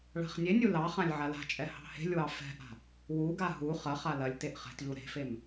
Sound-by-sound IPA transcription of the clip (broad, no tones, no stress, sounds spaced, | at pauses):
ɭ a̤ χ nʲ e nʲ u l ɑ χ ã lʲ ʕ a l a̤ t͡ʃʼ ɛ h ɑ̤ h e̤ lʲ w ɑ f ɛ̤ ʔ a̤ | w u ɡ a ɦ u χ ɐ χ a l ɐ lʲ t e ʔ χ ɛ̤ t ʎ u ɾ e̤ f e m